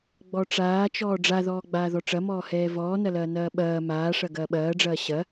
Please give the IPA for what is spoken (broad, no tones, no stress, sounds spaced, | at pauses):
ɡ͡b ɔ ʈ͡ʂ aː t͡ʃ ɔː ɖ͡ʐ a ð ɔː ɡ͡b aː ð ɔ ʈ͡ʂ ɐ m ɔː h ɛː v ɔː n ɐ l ɐː n ɐː ɓ ɐː m aː ʂ ɐ ɡ ɐː ɓ ɐː ɖ͡ʐ ɐː ɕ ɐ